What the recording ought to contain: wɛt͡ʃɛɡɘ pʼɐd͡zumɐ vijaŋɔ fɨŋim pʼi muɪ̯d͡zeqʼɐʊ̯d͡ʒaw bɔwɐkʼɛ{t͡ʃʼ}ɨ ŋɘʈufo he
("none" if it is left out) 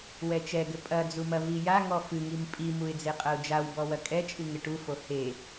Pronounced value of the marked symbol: t͡ʃʼ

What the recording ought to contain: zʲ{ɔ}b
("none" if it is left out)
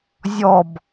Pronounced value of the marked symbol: ɔ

